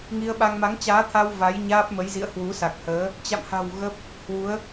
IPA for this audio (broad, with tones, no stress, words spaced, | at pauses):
ŋi˧ə̯ɓa˧ŋ ma˨˦ŋt͡ɕaː˨˦t̪ʰa˧w va˨˦jɲaː˦˥p̚mə˨˦jzḭ˧˨ə̯ hwu˨˦sa˨˩k̚həː˨˦ | t͡ɕa̰˧˨mha̤˨˩w ɣə˦˥p̚ | hwu˨˦ə̯